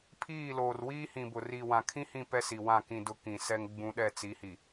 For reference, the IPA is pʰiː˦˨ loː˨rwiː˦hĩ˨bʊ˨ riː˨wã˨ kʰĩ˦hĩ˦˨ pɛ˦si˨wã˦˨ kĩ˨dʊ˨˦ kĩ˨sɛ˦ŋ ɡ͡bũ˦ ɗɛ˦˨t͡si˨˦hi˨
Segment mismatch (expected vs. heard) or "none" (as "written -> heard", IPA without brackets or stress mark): none